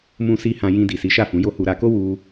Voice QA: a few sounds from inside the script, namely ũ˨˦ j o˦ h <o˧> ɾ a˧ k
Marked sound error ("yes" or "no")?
yes